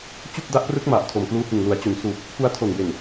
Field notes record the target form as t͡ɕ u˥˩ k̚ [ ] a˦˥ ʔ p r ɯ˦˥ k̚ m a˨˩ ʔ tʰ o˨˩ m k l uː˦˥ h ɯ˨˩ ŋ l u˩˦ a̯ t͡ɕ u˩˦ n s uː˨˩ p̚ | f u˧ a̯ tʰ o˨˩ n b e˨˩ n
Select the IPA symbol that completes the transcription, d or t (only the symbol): d